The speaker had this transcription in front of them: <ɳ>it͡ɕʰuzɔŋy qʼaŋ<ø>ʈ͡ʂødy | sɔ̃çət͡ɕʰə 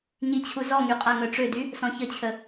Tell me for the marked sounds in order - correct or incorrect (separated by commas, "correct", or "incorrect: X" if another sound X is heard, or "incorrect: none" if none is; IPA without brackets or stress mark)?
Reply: incorrect: ɲ, incorrect: œ